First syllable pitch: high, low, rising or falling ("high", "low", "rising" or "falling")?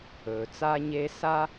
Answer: low